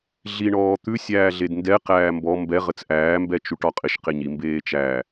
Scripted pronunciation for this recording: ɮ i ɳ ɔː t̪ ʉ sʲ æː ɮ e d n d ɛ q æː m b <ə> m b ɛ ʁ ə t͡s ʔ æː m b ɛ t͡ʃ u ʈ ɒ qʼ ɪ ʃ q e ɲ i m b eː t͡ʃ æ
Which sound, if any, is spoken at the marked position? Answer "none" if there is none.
ɔ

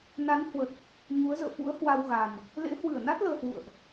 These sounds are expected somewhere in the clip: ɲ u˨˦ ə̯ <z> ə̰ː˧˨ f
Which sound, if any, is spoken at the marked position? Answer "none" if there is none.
z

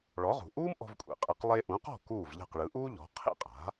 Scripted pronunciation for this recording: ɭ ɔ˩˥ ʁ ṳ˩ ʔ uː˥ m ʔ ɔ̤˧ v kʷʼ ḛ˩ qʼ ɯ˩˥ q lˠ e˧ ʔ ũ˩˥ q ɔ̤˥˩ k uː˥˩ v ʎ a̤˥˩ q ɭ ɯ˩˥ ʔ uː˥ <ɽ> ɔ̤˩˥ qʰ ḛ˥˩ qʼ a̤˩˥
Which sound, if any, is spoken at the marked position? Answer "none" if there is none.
ʎ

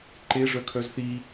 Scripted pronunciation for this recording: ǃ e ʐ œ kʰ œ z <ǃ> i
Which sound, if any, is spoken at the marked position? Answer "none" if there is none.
θ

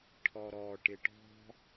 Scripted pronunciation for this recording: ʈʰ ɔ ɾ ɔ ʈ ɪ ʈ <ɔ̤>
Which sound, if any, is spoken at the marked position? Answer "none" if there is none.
ɔ̤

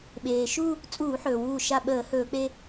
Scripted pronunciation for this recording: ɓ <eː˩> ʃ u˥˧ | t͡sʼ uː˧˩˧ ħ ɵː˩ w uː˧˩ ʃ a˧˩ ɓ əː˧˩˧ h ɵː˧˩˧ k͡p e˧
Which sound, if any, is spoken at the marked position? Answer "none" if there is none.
eː˩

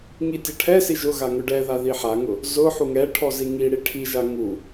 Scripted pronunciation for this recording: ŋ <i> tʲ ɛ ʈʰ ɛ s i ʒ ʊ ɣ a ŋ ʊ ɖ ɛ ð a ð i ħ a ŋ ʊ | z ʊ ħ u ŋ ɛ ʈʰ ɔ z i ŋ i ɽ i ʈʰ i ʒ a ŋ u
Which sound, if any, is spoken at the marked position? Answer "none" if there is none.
i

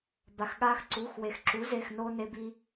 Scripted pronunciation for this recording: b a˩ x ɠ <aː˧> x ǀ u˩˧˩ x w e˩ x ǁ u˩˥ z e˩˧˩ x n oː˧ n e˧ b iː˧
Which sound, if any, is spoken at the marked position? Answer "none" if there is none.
aː˧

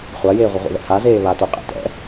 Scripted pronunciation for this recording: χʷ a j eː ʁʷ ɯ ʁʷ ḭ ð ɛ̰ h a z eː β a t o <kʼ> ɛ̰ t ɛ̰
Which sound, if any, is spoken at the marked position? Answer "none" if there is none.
qʼ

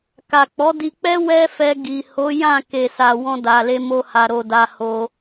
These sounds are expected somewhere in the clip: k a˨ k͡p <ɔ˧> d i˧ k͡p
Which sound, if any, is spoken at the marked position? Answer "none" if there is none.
ɔ˨˦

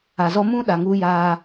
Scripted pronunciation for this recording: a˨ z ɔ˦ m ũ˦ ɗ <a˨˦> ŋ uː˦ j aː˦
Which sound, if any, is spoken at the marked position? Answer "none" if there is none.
a˨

